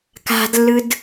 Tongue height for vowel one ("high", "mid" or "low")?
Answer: low